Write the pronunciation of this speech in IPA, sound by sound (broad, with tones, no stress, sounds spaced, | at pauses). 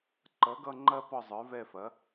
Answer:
ǃ ʌ˩˥ ɡ ʌ˦˨ ŋ͡ǃ ɐ˦ p ɒ˦˨ zˤ ə˞˩˥ v ɛ˦˨ f ɐ˩˥